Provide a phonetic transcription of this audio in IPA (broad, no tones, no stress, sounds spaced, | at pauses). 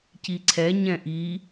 c i ǀʰ ɛ ɲ ɛ̃ ʔ i